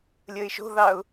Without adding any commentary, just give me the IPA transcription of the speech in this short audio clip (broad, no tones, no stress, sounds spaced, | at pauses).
lʲ əː ɪ̯ ʃ o̤ ð ɑ ʊ̯